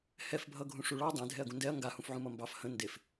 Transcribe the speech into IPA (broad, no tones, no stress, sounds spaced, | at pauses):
h ɛ f bʱ ʌ ɡʱ ũ ʂ u ɭ ɑ dˤ ẽ dʱ ɛ ɐ̯ ɡ ũ n d ɛ ɐ̯ ŋ ɡ a h ũ f ʕ ũ m ʌ m b ɑ f h ə̃ n d e f